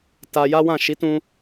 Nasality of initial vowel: oral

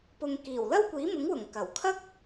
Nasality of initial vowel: oral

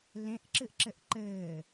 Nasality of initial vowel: nasal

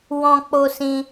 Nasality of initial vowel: nasal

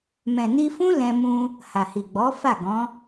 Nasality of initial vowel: nasal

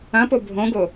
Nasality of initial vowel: nasal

